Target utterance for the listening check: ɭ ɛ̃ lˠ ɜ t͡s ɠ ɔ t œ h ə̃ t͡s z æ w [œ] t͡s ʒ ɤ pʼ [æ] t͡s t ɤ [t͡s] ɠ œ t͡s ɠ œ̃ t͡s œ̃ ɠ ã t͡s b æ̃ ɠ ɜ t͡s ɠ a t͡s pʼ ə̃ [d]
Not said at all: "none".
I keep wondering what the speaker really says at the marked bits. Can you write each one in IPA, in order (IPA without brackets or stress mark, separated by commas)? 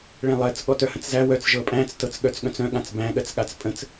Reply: œ, æ̃, t͡s, t͡s